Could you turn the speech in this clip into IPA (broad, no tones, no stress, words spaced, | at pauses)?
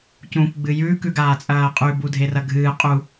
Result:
cũːkʷɡ͡bɨjʉ kʉɡaːt͡sʼɐːqʼʉ budʱerɐɡʱɨː qʼu